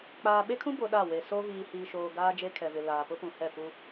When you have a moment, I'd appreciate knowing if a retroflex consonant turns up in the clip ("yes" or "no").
no